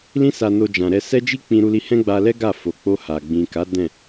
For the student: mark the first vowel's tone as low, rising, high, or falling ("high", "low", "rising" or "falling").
high